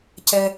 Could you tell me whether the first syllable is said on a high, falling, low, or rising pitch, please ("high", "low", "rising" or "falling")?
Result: high